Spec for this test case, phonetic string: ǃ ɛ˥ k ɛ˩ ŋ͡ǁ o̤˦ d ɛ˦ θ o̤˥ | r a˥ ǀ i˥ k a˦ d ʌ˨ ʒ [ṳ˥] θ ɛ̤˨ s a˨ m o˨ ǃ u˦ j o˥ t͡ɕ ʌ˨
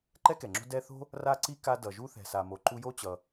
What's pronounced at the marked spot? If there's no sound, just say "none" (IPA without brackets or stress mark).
u˥